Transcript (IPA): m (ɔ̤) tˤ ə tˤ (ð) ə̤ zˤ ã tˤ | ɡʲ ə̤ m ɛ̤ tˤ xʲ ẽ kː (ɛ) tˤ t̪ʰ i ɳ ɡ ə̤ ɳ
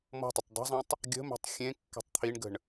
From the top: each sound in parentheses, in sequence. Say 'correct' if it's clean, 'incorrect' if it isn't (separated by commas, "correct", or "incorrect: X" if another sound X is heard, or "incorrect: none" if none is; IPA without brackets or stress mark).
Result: correct, incorrect: dˤ, incorrect: ɛ̤